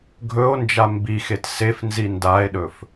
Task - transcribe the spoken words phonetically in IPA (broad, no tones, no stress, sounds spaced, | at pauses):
ɡʱ ɵ o̯ n d͡ʒ a m b i x e t s e f n z i n d a e̯ ɗ ɵ f